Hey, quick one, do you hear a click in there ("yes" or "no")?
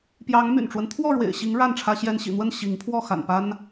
no